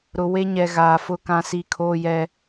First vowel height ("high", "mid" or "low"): high